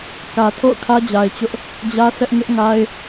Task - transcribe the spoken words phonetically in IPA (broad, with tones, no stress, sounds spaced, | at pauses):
k ä˨ tʰ o̰˦˨ ʊ̯ kʰ ä˦ d͡ʑ a˨ ɪ̯ t͡ɕ ʊ˦ ʔ | d͡ʑ ä˦ s ɛ˦ ʔ ŋ ɪ˦ ʔ ŋ a˦ ɪ̯